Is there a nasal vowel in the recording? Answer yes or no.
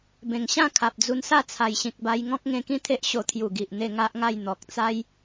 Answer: yes